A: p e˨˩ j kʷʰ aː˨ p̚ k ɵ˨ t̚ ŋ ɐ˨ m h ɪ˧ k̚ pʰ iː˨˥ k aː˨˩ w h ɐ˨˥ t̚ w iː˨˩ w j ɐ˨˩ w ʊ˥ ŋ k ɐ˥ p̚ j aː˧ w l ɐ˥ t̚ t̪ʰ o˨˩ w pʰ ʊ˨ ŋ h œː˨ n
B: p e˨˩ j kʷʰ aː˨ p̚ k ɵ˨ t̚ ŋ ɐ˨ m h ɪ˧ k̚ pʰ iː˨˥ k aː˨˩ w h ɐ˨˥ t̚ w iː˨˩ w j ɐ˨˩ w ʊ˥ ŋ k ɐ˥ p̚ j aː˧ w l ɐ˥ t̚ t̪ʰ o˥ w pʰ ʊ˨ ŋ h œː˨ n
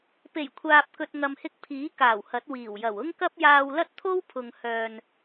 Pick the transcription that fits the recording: B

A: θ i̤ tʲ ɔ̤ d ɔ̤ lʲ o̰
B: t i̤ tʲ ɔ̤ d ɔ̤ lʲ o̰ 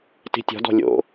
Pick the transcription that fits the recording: B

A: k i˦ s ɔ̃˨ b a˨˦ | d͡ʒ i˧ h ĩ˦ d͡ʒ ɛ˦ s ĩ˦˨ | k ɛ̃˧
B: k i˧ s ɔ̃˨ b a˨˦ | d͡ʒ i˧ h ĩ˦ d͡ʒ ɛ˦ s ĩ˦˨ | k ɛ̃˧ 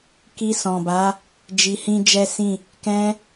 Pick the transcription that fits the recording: B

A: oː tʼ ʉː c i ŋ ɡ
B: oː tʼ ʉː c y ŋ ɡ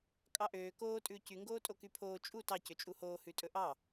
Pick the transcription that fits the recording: B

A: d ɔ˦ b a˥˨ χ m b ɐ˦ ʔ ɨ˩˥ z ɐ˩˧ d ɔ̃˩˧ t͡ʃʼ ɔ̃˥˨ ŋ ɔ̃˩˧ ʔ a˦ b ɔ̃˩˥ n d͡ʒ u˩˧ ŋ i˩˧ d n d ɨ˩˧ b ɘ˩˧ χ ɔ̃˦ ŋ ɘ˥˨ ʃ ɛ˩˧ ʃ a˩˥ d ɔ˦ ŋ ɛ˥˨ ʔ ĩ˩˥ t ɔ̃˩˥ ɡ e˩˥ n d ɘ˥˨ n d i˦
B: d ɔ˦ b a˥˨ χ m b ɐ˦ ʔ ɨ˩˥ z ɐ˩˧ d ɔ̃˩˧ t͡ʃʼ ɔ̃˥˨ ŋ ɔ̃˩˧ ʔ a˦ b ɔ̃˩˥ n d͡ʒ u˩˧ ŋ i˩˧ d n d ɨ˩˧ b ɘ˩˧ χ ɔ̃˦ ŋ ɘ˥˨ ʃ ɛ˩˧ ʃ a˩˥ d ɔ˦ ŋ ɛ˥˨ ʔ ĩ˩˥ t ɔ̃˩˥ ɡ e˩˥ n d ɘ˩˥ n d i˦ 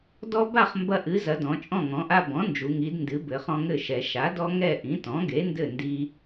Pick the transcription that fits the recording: A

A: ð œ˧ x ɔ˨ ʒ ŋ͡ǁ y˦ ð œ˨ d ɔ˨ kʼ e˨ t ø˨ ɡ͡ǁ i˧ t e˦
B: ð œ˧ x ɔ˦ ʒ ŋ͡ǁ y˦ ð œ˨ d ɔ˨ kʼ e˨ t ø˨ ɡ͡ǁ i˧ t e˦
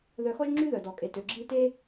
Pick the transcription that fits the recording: B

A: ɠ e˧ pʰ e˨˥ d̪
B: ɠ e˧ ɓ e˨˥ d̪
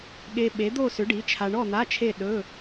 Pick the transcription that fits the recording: B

